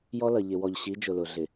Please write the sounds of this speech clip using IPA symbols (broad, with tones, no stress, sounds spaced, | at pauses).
j ɔ˦ l ʌ˨ ʎ ɪ˨ w ɔ˨ ʎ ɕ i˨˦ d͡ʒ ʊ˨ l ʊ˨ ɮ ɪ˨